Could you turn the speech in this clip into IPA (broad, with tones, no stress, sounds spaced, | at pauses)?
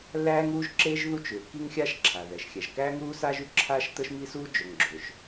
lː æː˥ ŋ uː˥ ʒ ǁ eː˥ ʒ ð u˥ t͡ʃ ʏː˩ k i˥ ŋ xʲ aː˥ ʃ ǁʰ a˩ ð ɛ˩ ʃ xʲ æ˩ ʒ k æː˥ ŋ uː˥ s aː˥ ʒ ʉ˩ ǁʰ aː˥ ʃ t̪ ə˥ ʃ m i˥ s uː˥ d͡ʒ ɵ˩ ŋ ɡ͡ǁ ɵ˩ ʃ